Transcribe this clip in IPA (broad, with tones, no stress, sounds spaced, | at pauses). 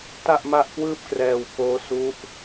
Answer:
t a˥˩ ʔ m a˥˩ ʔ k w ɯː˥˩ p̚ k r ɛː˧ w k oː˦˥ s u˦˥ ʔ